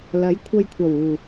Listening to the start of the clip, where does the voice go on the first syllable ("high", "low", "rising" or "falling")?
rising